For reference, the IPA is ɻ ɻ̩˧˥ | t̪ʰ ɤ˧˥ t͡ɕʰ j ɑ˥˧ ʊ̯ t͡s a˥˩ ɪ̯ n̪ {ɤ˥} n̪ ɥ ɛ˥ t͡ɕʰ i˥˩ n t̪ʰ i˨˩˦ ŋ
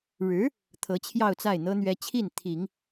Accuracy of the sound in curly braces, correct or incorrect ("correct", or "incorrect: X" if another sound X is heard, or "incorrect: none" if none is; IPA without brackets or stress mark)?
correct